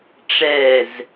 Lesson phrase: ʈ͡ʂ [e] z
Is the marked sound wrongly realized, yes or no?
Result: yes